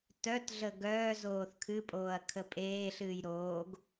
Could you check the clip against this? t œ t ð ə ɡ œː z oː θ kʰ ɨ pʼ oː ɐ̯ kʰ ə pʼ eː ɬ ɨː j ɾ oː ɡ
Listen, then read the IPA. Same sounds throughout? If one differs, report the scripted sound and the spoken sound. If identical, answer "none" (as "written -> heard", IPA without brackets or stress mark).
ð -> ɮ